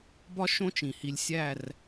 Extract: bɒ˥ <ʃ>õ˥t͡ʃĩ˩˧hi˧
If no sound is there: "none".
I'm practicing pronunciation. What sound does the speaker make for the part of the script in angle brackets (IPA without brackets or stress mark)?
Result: ʃ